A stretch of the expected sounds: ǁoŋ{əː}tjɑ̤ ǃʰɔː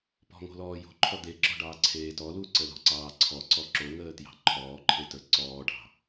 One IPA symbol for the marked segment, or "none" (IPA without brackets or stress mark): əː